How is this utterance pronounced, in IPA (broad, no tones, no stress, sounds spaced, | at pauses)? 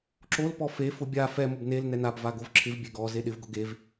ǁ o l p ɔ f e f ʊ bʲ a f ɛ m ʊ b n e l n ɛ n a b v a ɡ o v ǁʰ ɪ v bʲ e ɡ ɔ z e ɗ ɪ v ɡ ʊ ɡ e v